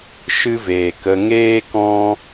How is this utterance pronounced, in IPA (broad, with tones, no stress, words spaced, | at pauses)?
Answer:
ʃɨ˦veː˨kə˧ ŋeː˦kɔ̃˦